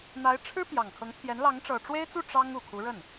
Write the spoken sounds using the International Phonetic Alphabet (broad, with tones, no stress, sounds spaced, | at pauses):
n̪ a˧˥ ɪ̯ ʈ͡ʂʰ ɻ̩˥ p j ɑ˨˩ ŋ kʰ ɤ˧˥ ŋ t̪ʰ j ɛ˧˥ n l ɑ˧˥ ŋ ʈ͡ʂ ɤ˨˩ ʈ͡ʂ w e˥ ɪ̯ t͡s u˥˩ ʈ͡ʂ ɑ˥ ŋ u˨˩ kʰ u˧˥ ɻ ə˥˩ n